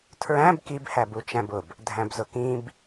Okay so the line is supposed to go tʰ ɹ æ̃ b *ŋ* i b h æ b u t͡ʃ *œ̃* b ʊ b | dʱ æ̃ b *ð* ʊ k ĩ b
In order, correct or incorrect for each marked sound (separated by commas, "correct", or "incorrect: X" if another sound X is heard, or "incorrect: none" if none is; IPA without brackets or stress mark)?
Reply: incorrect: k, incorrect: æ̃, incorrect: z